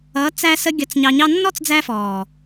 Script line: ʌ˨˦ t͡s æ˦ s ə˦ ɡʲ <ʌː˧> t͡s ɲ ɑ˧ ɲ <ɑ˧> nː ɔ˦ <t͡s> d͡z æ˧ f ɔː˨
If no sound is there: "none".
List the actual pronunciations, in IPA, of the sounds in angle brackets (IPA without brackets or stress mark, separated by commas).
ʌ˧, ɑ˦, t͡s